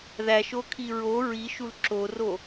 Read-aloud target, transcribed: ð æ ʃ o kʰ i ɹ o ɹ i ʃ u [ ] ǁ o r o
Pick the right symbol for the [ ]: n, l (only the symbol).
l